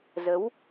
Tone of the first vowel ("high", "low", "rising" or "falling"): rising